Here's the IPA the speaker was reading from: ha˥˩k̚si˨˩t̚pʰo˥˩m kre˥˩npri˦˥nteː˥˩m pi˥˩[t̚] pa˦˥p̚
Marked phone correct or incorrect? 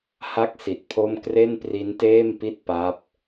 correct